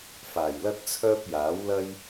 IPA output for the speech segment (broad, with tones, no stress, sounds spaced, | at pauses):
f aː˨˩ j l ɐ˥ t̚ t͡sʰ œː˥ p̚ j aː˨˥ w l ɐ˥ j